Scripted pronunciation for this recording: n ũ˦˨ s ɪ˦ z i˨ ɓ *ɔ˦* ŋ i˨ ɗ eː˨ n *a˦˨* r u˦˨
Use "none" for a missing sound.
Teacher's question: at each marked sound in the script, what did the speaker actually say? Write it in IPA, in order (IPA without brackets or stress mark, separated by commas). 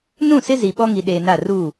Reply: ɔ˦, a˦˨